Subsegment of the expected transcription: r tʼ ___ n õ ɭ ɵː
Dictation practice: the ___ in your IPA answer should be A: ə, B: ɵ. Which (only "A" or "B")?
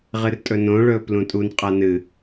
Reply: B